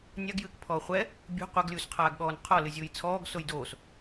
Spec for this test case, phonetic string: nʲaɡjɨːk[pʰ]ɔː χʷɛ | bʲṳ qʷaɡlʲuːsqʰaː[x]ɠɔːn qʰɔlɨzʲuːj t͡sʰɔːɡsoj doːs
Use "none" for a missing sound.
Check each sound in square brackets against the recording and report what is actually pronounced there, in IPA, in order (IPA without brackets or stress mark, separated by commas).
pʰ, ɡ